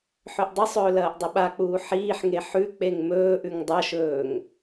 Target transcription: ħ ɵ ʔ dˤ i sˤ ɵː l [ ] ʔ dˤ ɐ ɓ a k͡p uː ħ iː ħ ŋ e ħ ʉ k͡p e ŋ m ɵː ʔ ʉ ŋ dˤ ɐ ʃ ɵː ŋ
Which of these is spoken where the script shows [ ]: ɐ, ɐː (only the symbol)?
ɐː